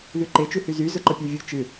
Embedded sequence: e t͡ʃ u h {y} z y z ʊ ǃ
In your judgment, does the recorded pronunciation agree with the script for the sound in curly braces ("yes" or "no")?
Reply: yes